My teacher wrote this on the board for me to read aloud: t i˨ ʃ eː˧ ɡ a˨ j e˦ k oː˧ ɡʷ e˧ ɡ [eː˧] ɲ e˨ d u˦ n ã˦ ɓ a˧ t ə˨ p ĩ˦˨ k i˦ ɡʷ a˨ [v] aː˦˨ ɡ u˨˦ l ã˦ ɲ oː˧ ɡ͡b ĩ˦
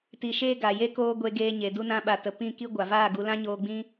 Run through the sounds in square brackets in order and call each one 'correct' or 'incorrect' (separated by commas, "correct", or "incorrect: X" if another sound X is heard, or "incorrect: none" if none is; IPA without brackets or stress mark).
correct, correct